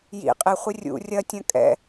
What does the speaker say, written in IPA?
jḭ qʼɪχʷɪ rʲṵ rʲɐtʲɐ̃ kʼɛ̰

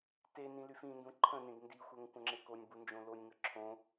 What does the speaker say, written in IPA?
tenĩ lyfĩndũ ǃʰə̃nẽɡ ndixʷɛŋ kʷə̃ŋ͡ǁekonʲbu nd͡ʒõlonʲŋə ǁʰõ

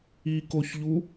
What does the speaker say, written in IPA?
ikoçʎu

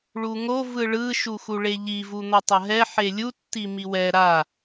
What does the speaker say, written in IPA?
ɭuŋo vɯɭɯ ʃuxuɭeʎi vun̪ʌtˤʌɦɛ ħelʲu tːimiwɛ ɾa

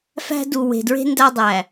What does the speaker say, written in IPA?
fæ̤˦ du˨we̤˨dɹe̤˦ ndæ˦dˤæ˨

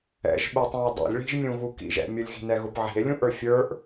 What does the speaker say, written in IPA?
ɛ̰ʒɓutˤĩe̯ dˤɛ̰lʲɭi̤ʒ mʲũɣukḭʒɛ̰ mʲʊlʲɣi̤ nɛɣʊpʕi̤e̯ lʲũʔə˞fʲə˞ʔ

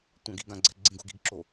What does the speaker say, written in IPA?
tʷãɡiɡãɡ͡ǀɛ̤ ɡ͡ǀĩɡṳɡi̤ɡǁo

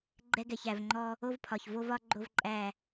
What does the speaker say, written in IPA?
ɡ͡ǃɛ˦ɡɛ˨çæ˨vŋ͡ǃɔ˦ | o˦vpʰɒ˨ç vo˦vɒ˦ ɡ͡ǃo˦vǃʼæ˦˨

